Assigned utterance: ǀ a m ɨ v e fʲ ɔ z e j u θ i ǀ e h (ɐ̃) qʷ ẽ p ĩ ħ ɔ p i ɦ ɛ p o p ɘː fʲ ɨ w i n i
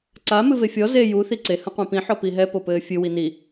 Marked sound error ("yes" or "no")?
no